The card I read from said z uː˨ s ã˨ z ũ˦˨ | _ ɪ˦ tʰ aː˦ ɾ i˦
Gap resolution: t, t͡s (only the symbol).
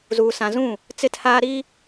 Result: t͡s